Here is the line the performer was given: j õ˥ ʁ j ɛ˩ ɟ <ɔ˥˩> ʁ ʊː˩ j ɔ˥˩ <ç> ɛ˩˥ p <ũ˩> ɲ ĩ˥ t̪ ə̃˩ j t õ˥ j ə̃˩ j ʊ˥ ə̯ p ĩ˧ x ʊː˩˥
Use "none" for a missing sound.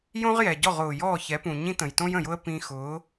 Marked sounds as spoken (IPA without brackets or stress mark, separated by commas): ɔ˥˩, ç, ũ˩